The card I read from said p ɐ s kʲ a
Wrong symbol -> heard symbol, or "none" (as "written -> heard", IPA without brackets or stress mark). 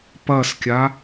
none